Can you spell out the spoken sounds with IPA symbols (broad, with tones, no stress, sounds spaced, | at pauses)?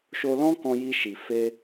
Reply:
ʃ o˧ l ɔ̃˦ k ɔ̃˧ j i˧ ʃ i˨ f e˧